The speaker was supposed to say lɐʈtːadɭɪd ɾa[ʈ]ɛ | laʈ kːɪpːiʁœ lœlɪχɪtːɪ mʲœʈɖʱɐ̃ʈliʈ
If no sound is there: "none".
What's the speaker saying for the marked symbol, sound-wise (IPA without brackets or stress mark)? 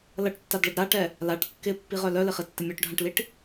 ʈ